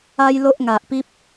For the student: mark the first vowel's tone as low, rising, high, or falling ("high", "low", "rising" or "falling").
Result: high